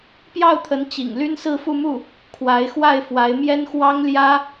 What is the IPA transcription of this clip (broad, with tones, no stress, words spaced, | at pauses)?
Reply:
pjɑ˥˩ʊ̯t̪ʰə˧˥nt͡ɕḭ˨˩ŋ ly˥nsɹ̩˥˧fu˥˧mu˥˩ | kʰwa˧˥ɪ̯xwa˥˩ɪ̯fwa˧˥ɪ̯ mjɛ˥n xwɑ˥ŋljä˥